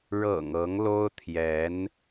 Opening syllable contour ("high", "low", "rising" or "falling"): low